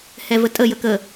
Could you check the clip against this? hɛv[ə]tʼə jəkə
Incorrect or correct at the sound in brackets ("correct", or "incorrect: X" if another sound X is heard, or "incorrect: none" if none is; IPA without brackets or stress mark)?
correct